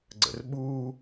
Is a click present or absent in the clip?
present